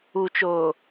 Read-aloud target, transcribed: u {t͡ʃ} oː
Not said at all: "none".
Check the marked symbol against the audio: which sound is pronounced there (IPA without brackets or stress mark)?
t͡ʃ